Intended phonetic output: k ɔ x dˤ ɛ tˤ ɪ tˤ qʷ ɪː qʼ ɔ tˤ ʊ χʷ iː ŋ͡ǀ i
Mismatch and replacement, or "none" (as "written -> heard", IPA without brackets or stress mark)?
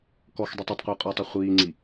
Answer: none